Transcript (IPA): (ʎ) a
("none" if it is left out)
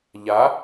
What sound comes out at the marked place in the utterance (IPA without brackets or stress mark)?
ʎ